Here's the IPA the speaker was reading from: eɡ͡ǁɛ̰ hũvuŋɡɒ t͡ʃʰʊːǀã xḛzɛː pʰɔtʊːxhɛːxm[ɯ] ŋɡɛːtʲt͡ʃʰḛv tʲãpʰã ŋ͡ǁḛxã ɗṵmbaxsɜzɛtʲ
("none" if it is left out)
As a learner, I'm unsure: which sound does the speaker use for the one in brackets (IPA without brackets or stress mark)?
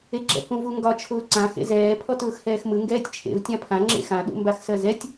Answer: ɯ